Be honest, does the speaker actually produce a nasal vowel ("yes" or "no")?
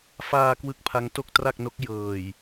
no